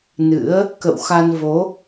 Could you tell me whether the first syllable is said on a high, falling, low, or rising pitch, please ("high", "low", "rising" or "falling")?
rising